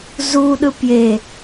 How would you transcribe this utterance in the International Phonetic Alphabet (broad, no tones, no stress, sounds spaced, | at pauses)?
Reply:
z u ɗ ɯ p j e